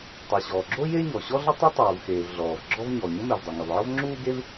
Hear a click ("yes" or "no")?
yes